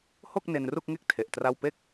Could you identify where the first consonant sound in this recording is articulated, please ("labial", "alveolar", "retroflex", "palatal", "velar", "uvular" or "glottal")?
glottal